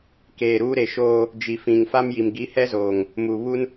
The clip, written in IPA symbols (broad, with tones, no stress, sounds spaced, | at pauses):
k eː˨ ɾ uː˦ ɾ e˨ ʃ oː˦ | d͡ʒ i˨ f ĩ˨ ŋ f a˦ m j i˨ m ɡ i˨˦ h ɛ˦ z oː˨ ŋ | m uː˨ β u˦ n